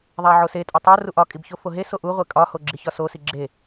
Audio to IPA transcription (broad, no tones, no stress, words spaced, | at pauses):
ðˤæʕosetʼo tˤo ruʔɒkʼib çofoɦeso ʔuʁʷe kʼɒho ɡ͡ǁiçɒsosi ɡ͡ǁe